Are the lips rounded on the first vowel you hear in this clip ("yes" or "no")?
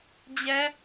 no